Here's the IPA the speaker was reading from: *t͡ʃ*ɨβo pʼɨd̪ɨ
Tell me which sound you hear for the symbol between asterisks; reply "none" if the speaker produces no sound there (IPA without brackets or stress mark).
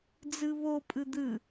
d͡z